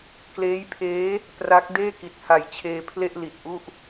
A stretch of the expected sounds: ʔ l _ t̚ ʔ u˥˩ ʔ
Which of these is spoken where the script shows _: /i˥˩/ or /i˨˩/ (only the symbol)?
i˨˩